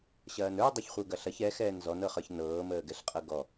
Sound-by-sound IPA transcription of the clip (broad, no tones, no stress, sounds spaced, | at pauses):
ɕ ɐː n ə˞ dˤ ɐ ç χʷ ə˞ ɡ ɐ ɬ ɐ ç ɛ x ɛː n z ɔ n ɤ χ ə˞ ç n ɤː m əː ɡ ɛ ɬ qʼ ɤ ɡ ɔ